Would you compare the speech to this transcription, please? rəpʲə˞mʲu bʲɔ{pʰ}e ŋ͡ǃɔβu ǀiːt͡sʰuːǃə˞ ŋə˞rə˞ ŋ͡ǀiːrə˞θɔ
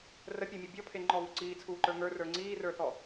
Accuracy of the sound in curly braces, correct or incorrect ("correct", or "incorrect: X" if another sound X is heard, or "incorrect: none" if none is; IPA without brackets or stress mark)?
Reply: correct